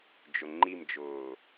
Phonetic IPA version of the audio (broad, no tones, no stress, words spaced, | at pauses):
d͡ʒʊŋ͡ǃimd͡ʒʊː